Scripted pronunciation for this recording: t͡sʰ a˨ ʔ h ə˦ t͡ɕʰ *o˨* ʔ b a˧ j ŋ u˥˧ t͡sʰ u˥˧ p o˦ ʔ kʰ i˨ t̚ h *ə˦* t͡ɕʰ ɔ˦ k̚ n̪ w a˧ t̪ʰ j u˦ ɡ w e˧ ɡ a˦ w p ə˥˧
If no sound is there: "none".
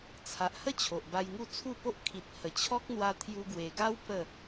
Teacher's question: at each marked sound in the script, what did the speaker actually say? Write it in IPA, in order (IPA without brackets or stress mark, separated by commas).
o˨, ə˨˩